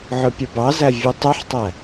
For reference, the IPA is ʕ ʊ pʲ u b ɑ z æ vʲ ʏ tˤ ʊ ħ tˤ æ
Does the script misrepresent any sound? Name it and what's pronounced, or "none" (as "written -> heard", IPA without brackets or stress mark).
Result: ʏ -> u